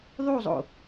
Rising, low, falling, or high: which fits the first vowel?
falling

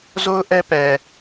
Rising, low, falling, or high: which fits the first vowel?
high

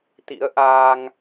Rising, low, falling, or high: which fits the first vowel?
rising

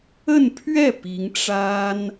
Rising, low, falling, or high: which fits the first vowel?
falling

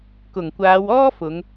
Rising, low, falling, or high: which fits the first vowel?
low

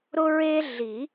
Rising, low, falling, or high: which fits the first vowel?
high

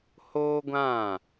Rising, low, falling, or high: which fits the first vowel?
high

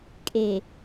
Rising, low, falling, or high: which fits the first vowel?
low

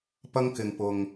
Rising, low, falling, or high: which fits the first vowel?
high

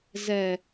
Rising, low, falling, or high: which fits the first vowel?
low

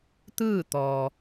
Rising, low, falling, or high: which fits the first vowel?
falling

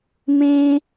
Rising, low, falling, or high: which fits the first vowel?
high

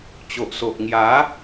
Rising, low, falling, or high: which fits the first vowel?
low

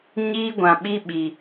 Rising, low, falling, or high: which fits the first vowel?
high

